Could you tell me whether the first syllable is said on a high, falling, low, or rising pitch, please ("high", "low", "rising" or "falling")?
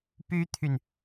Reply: high